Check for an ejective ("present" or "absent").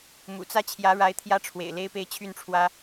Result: absent